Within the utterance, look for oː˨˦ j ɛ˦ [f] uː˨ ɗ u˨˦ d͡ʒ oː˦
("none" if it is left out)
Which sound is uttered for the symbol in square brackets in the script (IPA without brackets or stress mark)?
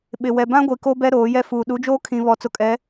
f